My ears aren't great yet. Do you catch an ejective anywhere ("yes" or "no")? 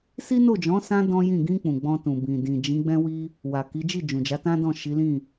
no